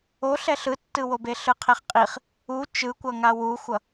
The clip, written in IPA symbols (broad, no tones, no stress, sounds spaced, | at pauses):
o ɬ ɛ ɬ ɯ tː ɯ w o b e ɬ ɯ qʰ e χ qʼ i χ | u t͡ʃ ɯ kʷ ʌ ŋ a w u xʷ ʌ